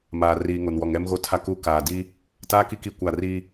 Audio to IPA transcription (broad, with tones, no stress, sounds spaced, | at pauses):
m aː˨ r iː˨ ŋ o˨ n w ɔ˨ ŋ ɛ˦ m ɣ o˦ tʰ a˦ k u˦ k aː˨ d i˦ | t aː˦ k i˦ k i˦˨ kʷ a˦˨ r i˦